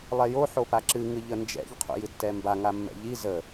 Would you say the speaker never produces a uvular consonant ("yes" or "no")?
no